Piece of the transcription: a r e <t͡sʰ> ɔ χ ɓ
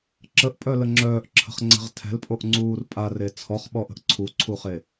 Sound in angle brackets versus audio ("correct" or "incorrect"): correct